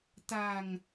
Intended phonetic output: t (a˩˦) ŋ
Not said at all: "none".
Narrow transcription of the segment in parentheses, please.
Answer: a˧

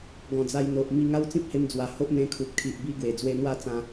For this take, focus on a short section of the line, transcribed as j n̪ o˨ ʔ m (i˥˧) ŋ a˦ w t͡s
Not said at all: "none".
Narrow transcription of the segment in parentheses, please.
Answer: i˥˧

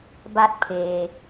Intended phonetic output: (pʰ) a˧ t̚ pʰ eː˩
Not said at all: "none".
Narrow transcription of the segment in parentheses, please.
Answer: b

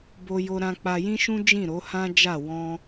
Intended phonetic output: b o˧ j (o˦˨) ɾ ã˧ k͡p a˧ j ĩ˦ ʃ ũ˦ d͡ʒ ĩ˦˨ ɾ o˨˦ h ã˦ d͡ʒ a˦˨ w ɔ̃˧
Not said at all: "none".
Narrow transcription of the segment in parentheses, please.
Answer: o˧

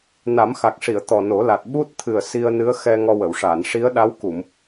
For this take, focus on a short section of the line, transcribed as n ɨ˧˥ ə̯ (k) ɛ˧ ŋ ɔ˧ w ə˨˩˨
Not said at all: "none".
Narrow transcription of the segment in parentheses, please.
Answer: x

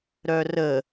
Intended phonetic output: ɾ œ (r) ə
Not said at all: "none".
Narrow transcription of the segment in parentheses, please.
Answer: r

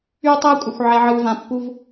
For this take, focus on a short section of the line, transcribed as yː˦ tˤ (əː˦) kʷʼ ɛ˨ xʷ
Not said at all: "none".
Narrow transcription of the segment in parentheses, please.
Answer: ɛː˦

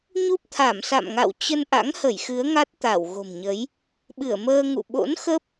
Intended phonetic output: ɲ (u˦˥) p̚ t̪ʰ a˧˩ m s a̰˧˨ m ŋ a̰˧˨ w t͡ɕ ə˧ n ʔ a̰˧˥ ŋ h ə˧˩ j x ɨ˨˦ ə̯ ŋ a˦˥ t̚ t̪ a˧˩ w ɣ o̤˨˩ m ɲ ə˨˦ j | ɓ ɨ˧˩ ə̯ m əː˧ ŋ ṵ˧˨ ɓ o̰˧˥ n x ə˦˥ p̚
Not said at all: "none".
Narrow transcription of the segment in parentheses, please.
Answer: u˦˥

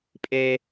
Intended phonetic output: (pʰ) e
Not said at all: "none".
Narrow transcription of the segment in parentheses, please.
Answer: pʼ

